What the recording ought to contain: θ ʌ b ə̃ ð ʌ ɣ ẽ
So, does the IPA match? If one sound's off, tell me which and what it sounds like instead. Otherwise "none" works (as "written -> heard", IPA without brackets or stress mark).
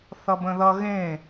none